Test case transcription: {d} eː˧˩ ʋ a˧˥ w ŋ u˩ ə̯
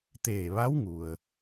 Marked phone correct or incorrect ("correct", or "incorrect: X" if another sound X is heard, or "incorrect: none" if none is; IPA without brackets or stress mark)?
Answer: incorrect: t̪